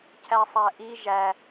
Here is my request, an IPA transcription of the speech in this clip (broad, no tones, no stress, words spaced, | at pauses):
cʰæsˤæʔi ʒæ